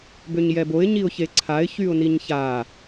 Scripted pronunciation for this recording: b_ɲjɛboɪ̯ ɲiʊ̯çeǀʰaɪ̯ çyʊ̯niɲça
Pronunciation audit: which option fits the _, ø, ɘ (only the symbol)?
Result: ø